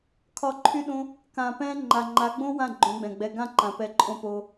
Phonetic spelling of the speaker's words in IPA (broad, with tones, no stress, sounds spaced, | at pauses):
kʰ ɒ˦˨ ǃʰ y˦ ɗ õ˦ | k ã˧ p ɛ̃˦ ŋ͡ǃ a˨ ŋ͡ǃ a˨˦ ɡ͡b õ˦ w ã˦˨ ɡ͡ǃ õ˨˦ ɡ͡b ɛ̃˨ ɡ͡b ɛ˧ ɡ ã˦˨ ǃ ã˨ p ɛ˨˦ ǃʼ õ˧ p o˦